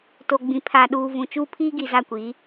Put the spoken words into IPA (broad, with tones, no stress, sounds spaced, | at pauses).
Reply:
t o˨ ɡ͡b ĩ˨ pʰ a˨ ɗ uː˨ v ũ˨ t͡ʃ uː˦ pʰ iː˦ ɡ i˨ z a˦˨ kʷ iː˨˦